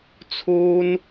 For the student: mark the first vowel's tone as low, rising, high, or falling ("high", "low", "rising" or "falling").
high